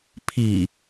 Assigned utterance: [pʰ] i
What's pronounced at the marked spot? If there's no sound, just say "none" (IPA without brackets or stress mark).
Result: pʰ